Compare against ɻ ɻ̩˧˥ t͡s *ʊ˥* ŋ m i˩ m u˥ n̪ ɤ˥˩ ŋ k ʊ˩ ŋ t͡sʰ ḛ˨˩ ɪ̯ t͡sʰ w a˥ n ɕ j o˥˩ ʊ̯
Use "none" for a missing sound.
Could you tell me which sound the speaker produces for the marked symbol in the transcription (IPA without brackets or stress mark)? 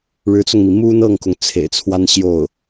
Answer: ʊ˧